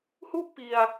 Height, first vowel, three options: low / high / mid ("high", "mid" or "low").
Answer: high